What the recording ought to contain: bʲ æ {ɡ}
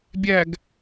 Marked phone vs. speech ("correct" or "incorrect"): correct